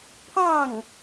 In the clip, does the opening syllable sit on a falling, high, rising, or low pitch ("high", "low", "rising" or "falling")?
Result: falling